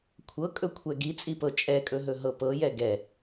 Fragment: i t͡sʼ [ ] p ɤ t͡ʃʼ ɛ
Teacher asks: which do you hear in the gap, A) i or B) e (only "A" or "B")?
A